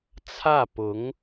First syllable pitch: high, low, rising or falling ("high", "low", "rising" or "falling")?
falling